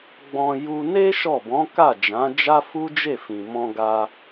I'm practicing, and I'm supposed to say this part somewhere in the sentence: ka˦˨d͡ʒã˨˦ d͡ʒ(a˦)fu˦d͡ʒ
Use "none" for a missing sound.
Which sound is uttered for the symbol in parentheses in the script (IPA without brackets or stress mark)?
a˦